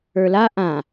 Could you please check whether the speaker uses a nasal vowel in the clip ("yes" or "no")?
yes